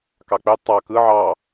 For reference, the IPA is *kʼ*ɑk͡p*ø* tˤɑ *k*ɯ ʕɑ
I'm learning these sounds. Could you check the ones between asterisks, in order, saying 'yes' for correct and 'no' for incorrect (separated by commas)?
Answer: no, yes, yes